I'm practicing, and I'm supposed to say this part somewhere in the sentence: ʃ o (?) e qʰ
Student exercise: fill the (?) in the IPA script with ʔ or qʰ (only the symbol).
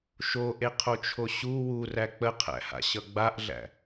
ʔ